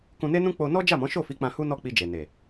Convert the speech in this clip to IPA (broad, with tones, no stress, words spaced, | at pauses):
kũ˧ne˦nũ˦ k͡po˧nɔ˦ d͡ʒa˦˨mɔ̃˨˦ʃo˦˨fi˨˦ k͡pã˧hu˦nɔ˦˨k͡pi˧ d͡ʒe˨ne˨